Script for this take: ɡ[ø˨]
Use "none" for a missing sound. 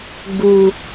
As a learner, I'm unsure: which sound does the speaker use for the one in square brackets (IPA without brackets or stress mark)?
u˨